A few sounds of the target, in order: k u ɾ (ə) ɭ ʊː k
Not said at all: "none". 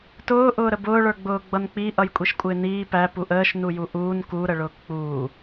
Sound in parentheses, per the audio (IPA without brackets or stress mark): ə